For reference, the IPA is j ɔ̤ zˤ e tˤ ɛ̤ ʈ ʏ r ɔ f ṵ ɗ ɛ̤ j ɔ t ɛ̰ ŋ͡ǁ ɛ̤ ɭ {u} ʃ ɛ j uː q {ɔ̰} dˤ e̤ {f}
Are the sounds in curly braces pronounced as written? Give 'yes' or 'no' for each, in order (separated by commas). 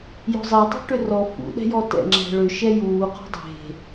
no, no, no